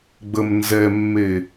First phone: ɡ͡b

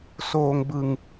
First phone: s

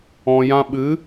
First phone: ɔ̃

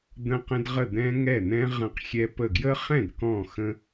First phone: d̪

